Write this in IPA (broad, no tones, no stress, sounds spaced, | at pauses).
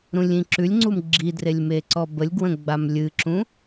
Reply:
ɾ ũ lʲ ĩ ǁ ʉ lʲ ŋ͡ǀ u m ɡ͡ǁ i d r e lʲ m e ǀ ɔ b ə lʲ ɡ w ə̃ ɡ͡b a m lʲ ɨ ǁ ũ